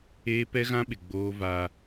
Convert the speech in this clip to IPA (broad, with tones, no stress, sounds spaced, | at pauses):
eː˦ p ɛ˦ ɣ ã˦ ɓ ɪ˨ ɡ͡b oː˦ v a˦